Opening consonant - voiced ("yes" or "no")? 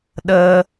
yes